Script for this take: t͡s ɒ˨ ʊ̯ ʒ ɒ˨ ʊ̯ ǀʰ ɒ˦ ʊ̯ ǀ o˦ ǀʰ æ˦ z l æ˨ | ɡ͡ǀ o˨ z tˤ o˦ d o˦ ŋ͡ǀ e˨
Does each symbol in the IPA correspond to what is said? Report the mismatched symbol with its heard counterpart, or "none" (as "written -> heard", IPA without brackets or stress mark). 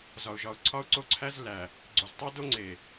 t͡s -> z